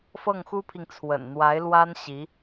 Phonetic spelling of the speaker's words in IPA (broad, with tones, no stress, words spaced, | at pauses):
fɤ˥˩ŋxu˥pʰi˨ŋ t͡sʰwə̰˨˩nn̪wa˧˥ɪ̯lwa˥n ɕi˧˥